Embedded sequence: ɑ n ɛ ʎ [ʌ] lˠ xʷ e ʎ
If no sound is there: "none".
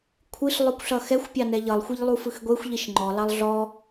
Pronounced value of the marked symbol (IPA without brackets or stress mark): ʌ